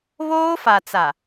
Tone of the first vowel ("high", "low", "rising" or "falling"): high